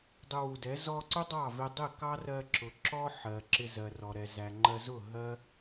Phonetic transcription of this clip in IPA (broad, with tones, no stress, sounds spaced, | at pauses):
dˤ ʊ˧ w u˨ d ɛ˨˦ z ɔ˧ ǀ ʊ˦ dˤ ɑ˦˨ v ɪ˧ dˤ ɪ˦˨ k ɑ˦ r ɜ˧ ǁ ʊ˨ ǁ ɔ˦ ħ ɜ˨ ǁ ɪ˧ z ɜ˨ r ɔ˨ ɾ ɛ˨ z æ˨ ŋ͡ǃ ɜ˧ z ʊ˦˨ ɦ ɜ˦